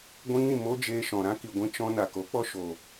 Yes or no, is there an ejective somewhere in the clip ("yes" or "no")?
no